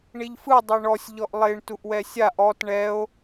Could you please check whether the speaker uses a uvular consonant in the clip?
no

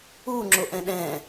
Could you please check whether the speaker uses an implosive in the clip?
yes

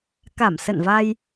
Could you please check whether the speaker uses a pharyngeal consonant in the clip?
no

